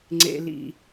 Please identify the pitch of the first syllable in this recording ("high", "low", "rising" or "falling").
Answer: low